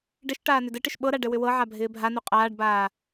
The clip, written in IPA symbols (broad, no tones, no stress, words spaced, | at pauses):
ɖɪʃ ʈaːnʏdɘʈɪʃ ɓɤɾa ɖɘwʏwɤʕa bʱɪːbʱanu qʼaːɖbaː